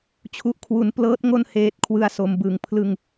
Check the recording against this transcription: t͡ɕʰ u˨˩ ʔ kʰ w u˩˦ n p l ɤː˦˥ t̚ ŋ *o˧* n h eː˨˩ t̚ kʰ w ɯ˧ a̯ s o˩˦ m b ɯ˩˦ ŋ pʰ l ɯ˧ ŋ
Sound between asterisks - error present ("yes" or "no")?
no